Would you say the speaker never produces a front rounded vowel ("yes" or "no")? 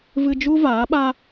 yes